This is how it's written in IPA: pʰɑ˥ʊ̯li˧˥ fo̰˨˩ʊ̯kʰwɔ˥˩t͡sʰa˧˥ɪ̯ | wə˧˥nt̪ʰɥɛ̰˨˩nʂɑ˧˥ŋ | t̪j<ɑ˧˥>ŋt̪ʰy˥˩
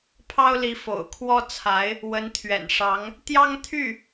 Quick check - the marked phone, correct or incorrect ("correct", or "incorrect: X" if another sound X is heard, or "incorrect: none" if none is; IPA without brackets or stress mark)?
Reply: incorrect: ɑ˥